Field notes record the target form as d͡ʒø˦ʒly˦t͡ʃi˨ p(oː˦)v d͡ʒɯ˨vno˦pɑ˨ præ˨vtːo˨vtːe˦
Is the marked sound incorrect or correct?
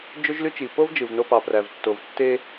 incorrect: o˦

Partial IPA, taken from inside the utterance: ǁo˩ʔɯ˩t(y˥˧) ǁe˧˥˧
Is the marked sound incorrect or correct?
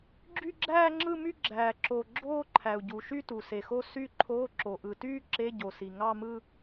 incorrect: yː˥˧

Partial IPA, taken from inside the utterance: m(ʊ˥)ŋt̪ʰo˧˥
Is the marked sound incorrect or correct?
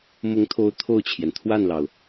incorrect: ʊ˧˥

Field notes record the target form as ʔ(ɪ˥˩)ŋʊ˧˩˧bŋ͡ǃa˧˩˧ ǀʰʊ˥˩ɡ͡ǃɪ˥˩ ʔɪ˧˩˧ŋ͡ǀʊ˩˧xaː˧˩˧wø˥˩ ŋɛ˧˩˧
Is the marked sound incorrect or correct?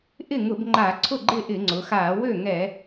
correct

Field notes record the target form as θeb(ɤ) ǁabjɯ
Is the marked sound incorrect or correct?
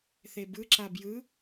incorrect: ɯ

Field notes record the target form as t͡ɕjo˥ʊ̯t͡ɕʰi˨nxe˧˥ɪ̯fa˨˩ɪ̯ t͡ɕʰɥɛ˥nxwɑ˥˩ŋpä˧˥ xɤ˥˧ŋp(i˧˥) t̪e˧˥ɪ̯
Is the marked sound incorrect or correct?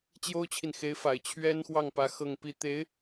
incorrect: i˥˩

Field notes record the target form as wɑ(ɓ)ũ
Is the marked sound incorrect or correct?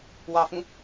incorrect: f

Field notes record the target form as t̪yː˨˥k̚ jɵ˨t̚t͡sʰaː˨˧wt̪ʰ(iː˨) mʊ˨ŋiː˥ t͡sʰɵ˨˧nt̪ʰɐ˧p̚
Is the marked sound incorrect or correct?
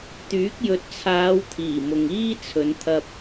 incorrect: iː˨˩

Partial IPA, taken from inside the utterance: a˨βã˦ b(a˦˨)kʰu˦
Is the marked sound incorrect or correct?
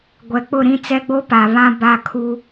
correct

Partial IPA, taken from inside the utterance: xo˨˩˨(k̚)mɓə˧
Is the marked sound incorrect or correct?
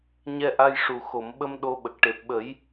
incorrect: none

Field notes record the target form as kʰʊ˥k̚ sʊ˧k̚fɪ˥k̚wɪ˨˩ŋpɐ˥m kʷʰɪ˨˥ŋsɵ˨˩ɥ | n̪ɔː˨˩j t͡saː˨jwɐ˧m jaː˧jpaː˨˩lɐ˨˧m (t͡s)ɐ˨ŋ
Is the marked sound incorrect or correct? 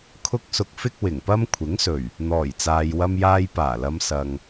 incorrect: s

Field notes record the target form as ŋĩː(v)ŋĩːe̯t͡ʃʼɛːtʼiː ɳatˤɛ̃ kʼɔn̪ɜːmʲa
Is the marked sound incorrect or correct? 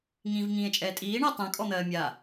correct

